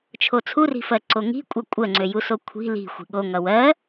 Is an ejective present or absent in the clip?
present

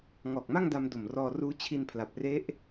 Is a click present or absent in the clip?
absent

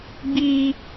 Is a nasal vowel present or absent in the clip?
absent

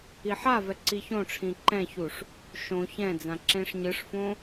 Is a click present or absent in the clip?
present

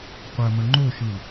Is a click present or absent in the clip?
present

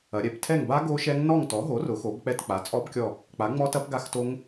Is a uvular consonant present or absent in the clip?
absent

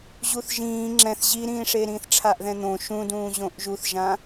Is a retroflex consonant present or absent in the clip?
present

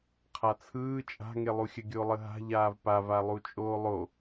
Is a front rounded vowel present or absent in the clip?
absent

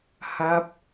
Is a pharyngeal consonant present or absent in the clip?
absent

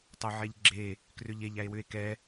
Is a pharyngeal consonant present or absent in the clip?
present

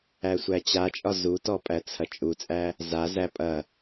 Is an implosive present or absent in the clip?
absent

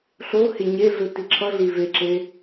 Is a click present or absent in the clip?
present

